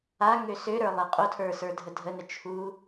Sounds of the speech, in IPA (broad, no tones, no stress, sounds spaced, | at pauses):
a ŋ ø s ø ɾ ə˞ lˠ ɛ qʼ o tʰ ə˞ s ə˞ dʱ ə dʱ ə n ə t͡ʃʰ u